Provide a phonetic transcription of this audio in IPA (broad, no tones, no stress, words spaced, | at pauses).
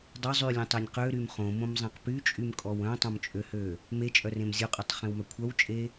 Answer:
dˤœ zˤylʲẽtˤenʲ qøɾym χõmõmzˤẽq pyt͡ʃʼymkʼɔw œ̃tˤõmt͡ʃʼøhø | met͡ʃʼœrẽm zʲoqʼytˤχẽwmœ kʷʰœwt͡ʃʼe